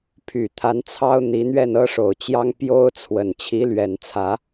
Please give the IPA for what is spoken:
pʰy˨˩ t̪ʰa˧˥n t͡sʰɑ˥ʊ̯n̪i˧˥n̪ɥɛ˥˩n ɤ˥ʂo˨˩ʊ̯t͡ɕjɑ˥ŋ pjo˥ʊ̯t͡sʰwə˨˩n t͡ɕʰi˧˥lɥɛ˨˩nt͡sʰä˧˥

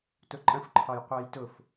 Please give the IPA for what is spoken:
tʊǃʼə̃f ǃʰɒjqʷæjtʊf

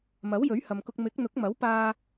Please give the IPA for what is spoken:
mɐ˨˥wjɵ˨˥ɥhɐ˨mkʊ˧k̚ mɪ˨˥k̚n̪ʊ˨˥k̚ mɐ˨˥wpaː˧

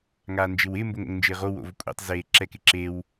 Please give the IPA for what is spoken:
ŋaːnd͡ʒɪwɪː mboŋo̰ŋnd͡ʒɪːʁo wo̰vkʷʼɛ̰tˤ zeːǁɛkɪǁew

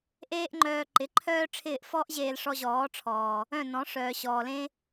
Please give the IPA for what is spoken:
ʔeː˦ʔŋ͡ǃœː˧ ǃɪ˨˦ǃʰœː˦ʈ͡ʂʰɪː˦˨ʔ fɔ˦ʔʑeː˧lʂɔ˧ ʑɔː˨˦ʈ͡ʂʰɔː˨ | œ̃˦˨nɔ̃˨˦ ʂœː˨ɕɔː˨lẽ˦

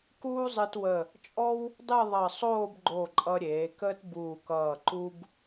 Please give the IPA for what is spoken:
kuː˥zˤɨ˧twə˧˩ | t͡ʃʼɔ˥w | dˤɨ˥˧ðˤʌ˧˩sˤoː˥˧b ɡ͡ǃo˧˩ǃʼʌ˧ ɾʲeː˩˧kəː˥tbuː˧˩kʌː˧˩ ǃu˧b

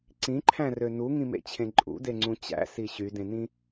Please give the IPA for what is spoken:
ǀĩǃʰæ̃rø nuŋĩmḛt͡ɕʰẽ ǃʼṵdeŋ͡ǀũ t͡ɕæ̰si ɕydẽnĩ

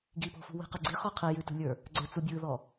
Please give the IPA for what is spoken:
ɡipɔ̤fṳ wi̤qɯɡ͡ǀi χɔqʰi jʉtṳlʲə˞ | ɡ͡ǀə˞t͡subʲɯðɔ

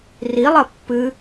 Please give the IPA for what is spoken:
rilˠɐ pːɨ

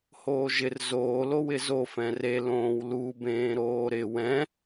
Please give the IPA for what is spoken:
hoːʒɪr zoː lowɪzo fɛ̃re lõːwlu bẽːɾoːɾɪ wɛ̃

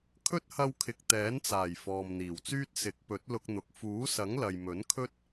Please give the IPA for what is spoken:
kʰɵ˥t̚hɐ˧wkʰɪ˨k̚ t̪ɛː˨˥nt͡saː˨˩j fɔː˨mn̪iː˨˩wt͡syː˥t̚ sɪ˨˥k̚pɵ˨˥t̚ lʊ˧k̚n̪ʊ˨k̚ fuː˨˥sɐ˨˥ŋ lɐ˨jmɵ˨˥nkʰɵ˥t̚

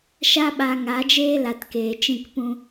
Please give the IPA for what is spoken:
ʃa˦ɓa˧ ŋa˨˦d͡ʒeː˦la˨tkeː˨ t͡ʃĩ˦˨kpũ˦

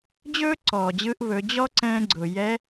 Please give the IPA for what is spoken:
d͡ʑɵː˥ǀɔː˩d͡ʑɯː˧ʔβɵ˩˧ d͡ʑɔ˥ǀɛ̃ː˧ɡ͡ǀʊ˩jɛ˧˥

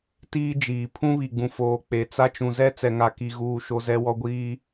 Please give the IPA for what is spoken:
tiː˦d͡ʒiː˨ pʰũ˦βi˨ɡ͡bũ˨ foː˨ k͡pe˨˦t͡sa˦ t͡ʃũ˨zɛ˦ t͡sɛ˨ŋa˨ki˨ɣuː˨ ʃo˦zɛ˦wɔ˦ ɡʷiː˦

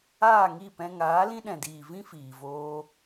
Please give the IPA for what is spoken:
aː˦˨ŋi˦˨pɛ̃˧ ŋaː˨˦lĩ˦ɗɛ̃˨diː˨ vĩ˦fiː˨voː˧

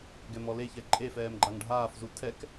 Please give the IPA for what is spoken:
ɡɛmɔleçɛ ǃʼefɛːm ɡ͡ǃaŋɖʱaːfzu tʰɛk

